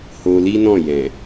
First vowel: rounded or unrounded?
rounded